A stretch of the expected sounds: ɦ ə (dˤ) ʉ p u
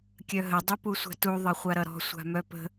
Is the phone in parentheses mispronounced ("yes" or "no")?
no